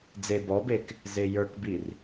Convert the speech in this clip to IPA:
d͡z e b ɔ b e k | z e j ə˞ k b i r

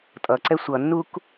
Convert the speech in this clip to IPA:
tʼ ʌ ǀ ɛ sʷ ʌ nː u k

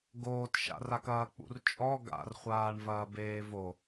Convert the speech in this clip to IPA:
ɡ oː t ʃ a̰ r a k ɐː k͡p ṵ r t͡ʃʼ ɔ ɡ a̰ r χʷ aː ɳ v ɐː b eː v o

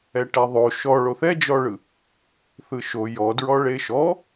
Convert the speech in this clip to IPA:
ɛ ʈ ɛ ðˤ o ʃ ɔ ɭ o θ ɛ d͡ʒ ɔ ɭ ɯ | θ ɯ ʃ o j ɔ d ɹ ɔ ɭ e ʃ ɔ

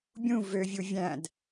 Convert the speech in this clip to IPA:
bʲ ũ v ø vʲ u vʲ æ̃ d

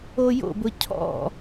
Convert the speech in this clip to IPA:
o j o̰ b ʊ cʰ ɔ̰

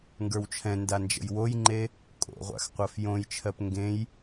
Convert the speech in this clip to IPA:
ŋ ɡ ə˞ w t͡ʃʰ ɛ̃ n d a n d͡ʒ ə̰ j w o j ŋ͡ǃ e | kʼ o̰ ʁʷ a̰ x qʷ ɜ f j õ j t͡ʃʰ ɜ p ŋ ɡ ẽ j

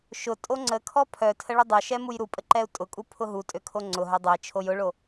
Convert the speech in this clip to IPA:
ʃ ʊ tʼ o ŋ͡ǀ ə kʰ ɔ pʰ œ tʰ ə ɭ ʊ dˤ œ ʃ ɛ m u j ɾ u pʼ ə ǃ ɛ u̯ tʼ ʊ kʼ u pʰ ʊ ɦ u tʼ ø kʰ o ŋ͡ǀ ʊ ɦ œ dˤ ʊ i̯ t͡ʃʰ o j ʊ ɭ o

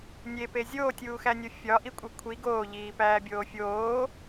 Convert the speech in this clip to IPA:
nʲ e p e zʲ oː tʲ uː x æ nʲ o fʲ ɒ ʔ i kʷʼ i kʷʰ i ɡ oː ʎ iː p æː bʲ oː fʲ oː

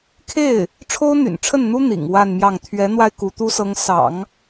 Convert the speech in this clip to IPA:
kʰ e˥˩ ɪ̯ | ʈ͡ʂʰ o˥ ʊ̯ n̪ y̰˨˩ n ʈ͡ʂʰ ə˥˩ n n̪ u˥ n̪ ḭ˨˩ ŋ w a˥˧ n m j ɑ˥˩ ŋ t̪ʰ ɥ ɛ˧˥ n̪ w a˧ ɪ̯ k u˧˥ t̪ u˥ s ɤ˧˥ ŋ s ɑ̰˨˩˦ ŋ

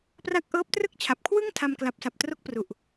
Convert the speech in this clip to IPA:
p r a˦˥ k̚ ʔ ɤː˦˥ p̚ t r ɯ˥˩ k̚ t͡ɕʰ a˨˩ p̚ kʰ w ɯ˥˩ ŋ tʰ a˧ m k l a˨˩ p̚ s a˨˩ p̚ t r o˦˥ k̚ p r u˨˩ ʔ

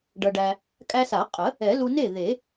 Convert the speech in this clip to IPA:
ɖ ʌ˧ ɖ æ˧ | kʼ æ˧ s a˨˩˦ qʼ ə˨˩˦ | ɛ˨˩˦ l u˧ n e˥˩ ð e˨˩˦

